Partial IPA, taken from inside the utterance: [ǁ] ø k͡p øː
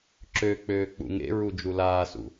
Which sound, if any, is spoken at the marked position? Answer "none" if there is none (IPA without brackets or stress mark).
ǁ